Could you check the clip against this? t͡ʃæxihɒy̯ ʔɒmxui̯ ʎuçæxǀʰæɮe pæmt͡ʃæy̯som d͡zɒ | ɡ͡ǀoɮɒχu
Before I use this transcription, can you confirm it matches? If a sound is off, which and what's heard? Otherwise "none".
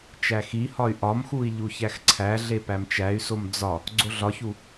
χ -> ç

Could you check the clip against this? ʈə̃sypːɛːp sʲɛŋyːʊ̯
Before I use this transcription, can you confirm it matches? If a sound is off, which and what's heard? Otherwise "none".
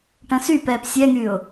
pː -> p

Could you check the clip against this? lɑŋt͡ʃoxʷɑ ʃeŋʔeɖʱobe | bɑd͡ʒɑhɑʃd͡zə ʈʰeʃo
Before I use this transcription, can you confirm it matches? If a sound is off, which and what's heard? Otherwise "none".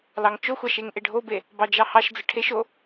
none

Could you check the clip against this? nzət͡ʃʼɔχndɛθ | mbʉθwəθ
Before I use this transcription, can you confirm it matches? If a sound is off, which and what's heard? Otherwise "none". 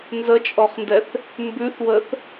none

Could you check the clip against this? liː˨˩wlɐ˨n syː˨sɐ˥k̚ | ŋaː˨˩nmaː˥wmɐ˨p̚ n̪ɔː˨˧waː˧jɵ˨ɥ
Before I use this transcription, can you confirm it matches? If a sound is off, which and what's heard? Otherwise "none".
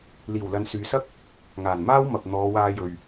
none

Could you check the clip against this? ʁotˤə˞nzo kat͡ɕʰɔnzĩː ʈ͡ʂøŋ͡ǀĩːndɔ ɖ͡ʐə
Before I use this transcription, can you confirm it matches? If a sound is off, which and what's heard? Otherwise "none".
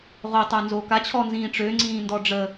none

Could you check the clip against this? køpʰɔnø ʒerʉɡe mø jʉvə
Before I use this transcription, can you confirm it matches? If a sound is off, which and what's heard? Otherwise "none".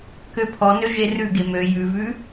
ə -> ʉ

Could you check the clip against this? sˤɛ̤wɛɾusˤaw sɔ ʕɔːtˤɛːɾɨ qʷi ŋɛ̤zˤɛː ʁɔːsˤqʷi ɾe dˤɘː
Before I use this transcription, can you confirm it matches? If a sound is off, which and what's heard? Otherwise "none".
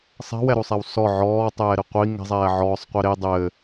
ʁ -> ʕ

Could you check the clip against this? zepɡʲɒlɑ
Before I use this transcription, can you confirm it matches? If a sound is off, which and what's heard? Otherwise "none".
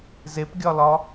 ɑ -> ɒ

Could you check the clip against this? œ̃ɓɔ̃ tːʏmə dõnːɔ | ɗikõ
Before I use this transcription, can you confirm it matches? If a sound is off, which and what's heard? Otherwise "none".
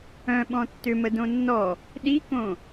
none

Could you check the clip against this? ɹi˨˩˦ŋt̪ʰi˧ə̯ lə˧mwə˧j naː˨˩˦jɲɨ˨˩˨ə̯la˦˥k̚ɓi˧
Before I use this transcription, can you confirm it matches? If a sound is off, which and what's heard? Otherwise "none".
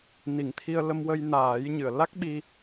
ɹ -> n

